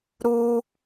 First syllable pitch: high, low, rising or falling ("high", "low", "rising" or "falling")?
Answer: high